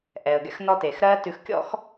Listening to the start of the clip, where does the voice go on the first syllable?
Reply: low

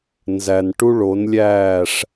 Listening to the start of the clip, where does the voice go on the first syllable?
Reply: low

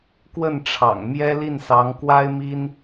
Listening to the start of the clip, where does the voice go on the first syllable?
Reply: falling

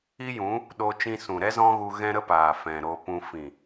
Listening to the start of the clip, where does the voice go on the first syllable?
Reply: high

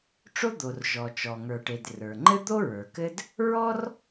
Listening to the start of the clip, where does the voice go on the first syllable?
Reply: high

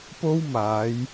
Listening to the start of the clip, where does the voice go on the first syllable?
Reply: high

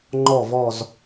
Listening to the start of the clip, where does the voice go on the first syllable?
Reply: low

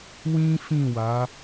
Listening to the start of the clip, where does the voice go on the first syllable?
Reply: high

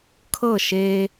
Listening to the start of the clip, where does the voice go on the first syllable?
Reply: falling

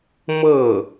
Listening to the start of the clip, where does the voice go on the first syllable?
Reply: falling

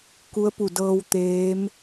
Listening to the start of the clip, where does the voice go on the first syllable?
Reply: rising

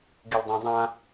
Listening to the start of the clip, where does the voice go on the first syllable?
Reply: low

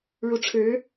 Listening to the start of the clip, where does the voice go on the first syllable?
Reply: rising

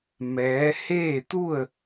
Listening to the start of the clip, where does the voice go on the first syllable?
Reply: rising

